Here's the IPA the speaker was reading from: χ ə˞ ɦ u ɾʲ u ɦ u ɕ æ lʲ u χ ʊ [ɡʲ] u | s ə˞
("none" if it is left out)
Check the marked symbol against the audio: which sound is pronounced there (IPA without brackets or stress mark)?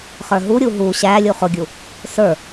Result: ɡʲ